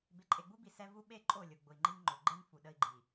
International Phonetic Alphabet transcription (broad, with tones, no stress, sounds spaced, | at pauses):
b e˨ ǃʼ e˨ ɡ͡b u˦ b i˨ s ɛ˦ v u˦ ɓ e˦˨ ǃʼ o˦˨ lʲ ʊ˨ ɡ͡b ʊ˨ i̯ ŋ͡ǃ i˦ ŋ ŋ͡ǃ ɵ˨ ɡ͡ǃ e˦ n f u˨ ɗ ə˦ i̯ ɡ͡ǃ i˨